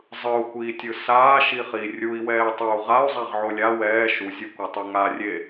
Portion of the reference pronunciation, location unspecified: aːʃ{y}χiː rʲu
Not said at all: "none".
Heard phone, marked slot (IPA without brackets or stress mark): i